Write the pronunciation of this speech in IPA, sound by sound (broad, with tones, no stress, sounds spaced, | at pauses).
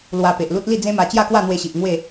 l w a˧ p e˨ ʔ l u˦ t̚ l i˥˧ d͡z ẽ˦ m a˧ t͡ɕ j a˥˧ k w a˥˧ n̪ w e˧ ɕ i˨ ʔ ŋ w e˥˧